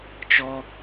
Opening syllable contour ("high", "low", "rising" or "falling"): high